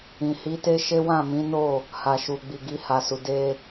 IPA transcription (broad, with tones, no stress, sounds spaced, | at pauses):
ĩ˨ h i˨˦ t e˦ ʃ e˦ w ã˦˨ m ĩ˨˦ n o˦˨ | h a˨ ʃ u˨ ɡ͡b i˨ ɡ i˧ h a˨ s u˨ d e˧